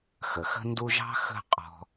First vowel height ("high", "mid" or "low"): mid